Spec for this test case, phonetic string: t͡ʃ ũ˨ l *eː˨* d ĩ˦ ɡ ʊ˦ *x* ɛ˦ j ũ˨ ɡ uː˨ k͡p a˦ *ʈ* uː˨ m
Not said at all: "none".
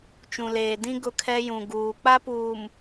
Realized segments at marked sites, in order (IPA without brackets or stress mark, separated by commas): eː˨, kʰ, p